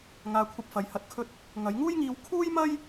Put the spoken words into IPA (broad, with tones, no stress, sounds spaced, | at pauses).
ŋ aː˧ kʷʰ ɐ˧ p̚ f ɐ˨˧ j h ɐ˧ t̚ kʰ ɵ˥ t̚ | ŋ ɐ˨˧ j ŋ uː˥ j ŋ iː˧ w kʰ uː˥ j m ɐ˥ j